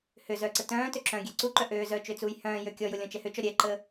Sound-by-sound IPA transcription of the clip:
h ʏ z œ ǀ ə t œ̃ː t ø ǁ œ̃ ɡʲ ɛ ǀ u ǃ œ ʔ øː z œː t͡ʃ ø t͡s uː j h œ̃ː j ø kʲ ɔ j ʊ lʲ ɔ̃ t͡ʃ ɛ h ʏ t͡ʃ ɔ ɾʲ ɛ ǃ ə

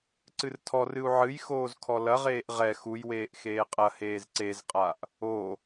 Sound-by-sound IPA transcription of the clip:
ǀ ɨ r tʰ ɔ r ɨ u̯ ʕ ɨ j x oː z kʰ ɔ l ɐ ʁ eː ʔ ʁ ɛ x u j w eː ʔ x eː qʼ ɐ h eː z ǀ e z qʼ a ʔ | o

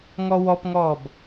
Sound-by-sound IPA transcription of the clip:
ŋ ɔ w ɔ p ŋ ɔː b

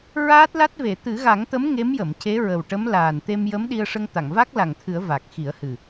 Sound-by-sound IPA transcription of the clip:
ɹ aː˦˥ t̚ l a˦˥ t̚ v e˨˩˨ t̪ ɨ˨˩˦ ɣ a˨˩˦ ŋ t̪ ə˧˥ m ŋ e˧˥ m j ə˨˩˨ m c e˧˥ ɹ ə˨˩ w ʈ ə˧˥ m l aː˨˩ n t̪ e˧ m j ə˧˥ m ɗ i˧ ə̯ ʂ ə˧ ŋ t̪ a˨˩˨ ŋ v a˦˥ k̚ l a˨˩ ŋ t̪ʰ ɨ˨˩˦ ə̯ v a˨˩ k̚ x i˨˩˦ ə̯ h ɨ˨˩

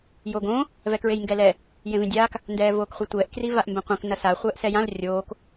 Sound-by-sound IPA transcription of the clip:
j o ɡ õ | v ɛ k ɹ e j ŋ ɡ ɛ l ɛ | j ẽ v ĩ dʲ aː k | n d ɛː v oː k χʷ i tʷ ɛː ʔ k r i v a ʔ m b ẽ qʷ ɛ̃ k n ɐ s a χʷ ɛː ʔ s ɛ j ã l rʲ oː k

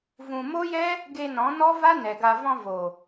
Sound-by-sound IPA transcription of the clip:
v ũ˨ m o˦ j ɛ˦ | ɡ e˧ n ɔ̃˨˦ n ɔ˦ v a˦ n ɛ˨ ɡ a˧ v ɔ̃˧ v o˨

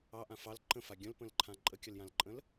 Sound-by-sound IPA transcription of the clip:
ɑ ʔ ã f ɑ l ǃ ə̃ f a ɡʲ ə̃ l p ə̃ l ǃʰ ã ǃʼ ə kʲ ə l j ã l ǃʼ ə̃ l

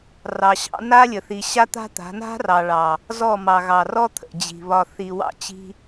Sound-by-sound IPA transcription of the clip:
r ɑ˨ ɕ ɑ̰˦ n a˦ lʲ ə˨ θ i˨ ɕ a˦ t̪ a̤˦ t̪ a̤˨˦ n a̤˦ r ɑ˨ ɭ ɑ˨ | z ɔ˦˨ m ɑ˨ ɣ ɑ˨ r ɔ˦ t̪ʰ ə̰˨ d͡ʑ i̤˨ β ɒ˨ θ i˨ w ɑ̰˦ t͡ɕ i̤˦

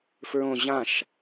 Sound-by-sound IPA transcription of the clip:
f ɹ õ ʑ ã ʃ

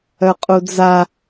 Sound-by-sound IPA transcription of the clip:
œ qʼ u d͡z a

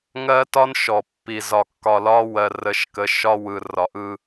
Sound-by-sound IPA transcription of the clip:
ŋ ɜ˦ t ɒ˦ n ʃ ɔ˨ pː i˨ z ɒ˨ kː ɒ˨ l ɒ˦ w ɜ˨ r ə˨˦ ʃ k ə˨˦ ʃ ɒ˦ w ɯ˨ r ɒ˨ ʔ ɯ˦

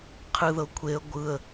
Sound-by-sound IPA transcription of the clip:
qʰ ɯ ð ɤ kʷʰ e ə̯ ɡʷ ɯ ə̯

